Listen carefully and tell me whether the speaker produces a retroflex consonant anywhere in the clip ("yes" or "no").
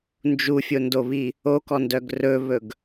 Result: no